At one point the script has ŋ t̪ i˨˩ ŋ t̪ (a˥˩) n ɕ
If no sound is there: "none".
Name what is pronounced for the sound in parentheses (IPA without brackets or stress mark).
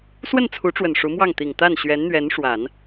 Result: a˥˩